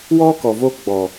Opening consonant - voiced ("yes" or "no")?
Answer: yes